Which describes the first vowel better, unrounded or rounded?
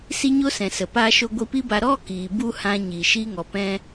unrounded